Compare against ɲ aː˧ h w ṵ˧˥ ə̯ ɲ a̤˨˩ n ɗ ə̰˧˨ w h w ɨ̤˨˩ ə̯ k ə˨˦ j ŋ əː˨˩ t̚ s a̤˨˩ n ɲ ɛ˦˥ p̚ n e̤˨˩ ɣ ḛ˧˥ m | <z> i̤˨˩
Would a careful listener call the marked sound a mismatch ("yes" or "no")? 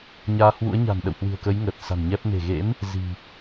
no